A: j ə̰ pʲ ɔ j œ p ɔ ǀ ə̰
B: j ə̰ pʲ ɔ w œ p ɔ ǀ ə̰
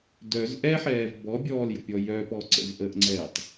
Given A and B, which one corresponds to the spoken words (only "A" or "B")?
A